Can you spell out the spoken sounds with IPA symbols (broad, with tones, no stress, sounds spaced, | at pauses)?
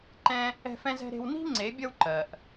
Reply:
ǃ ɛ̃˦ | ɛ̤˦ f ɛ̃˦ z ɛ̤˦ ɾ e̤˦ w n i̤˦ ŋ͡ǀ e˨˦ bʲ ʌ˦ w ǃ ɜ˨ ʔ